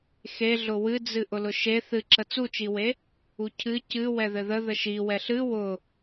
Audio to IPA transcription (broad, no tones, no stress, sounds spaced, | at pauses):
x e ɮ ʊ w ɨ d͡z ɨ ʔ ʊ l ʊ ʃ e θ ɨ ǁ ə t͡s u t͡ʃ i w e | u cʰ ɨ c ɨ w ɛ ð ɘ ð ə ð ə ʃ i w ɛ ɬ ɨ w ʊ